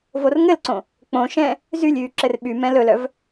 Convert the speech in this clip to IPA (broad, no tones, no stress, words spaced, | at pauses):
vorŋɘlǀõ | k͡põʃɛ̃ | zylʲyː ǁɘrɓymɛ̃ lɵlœv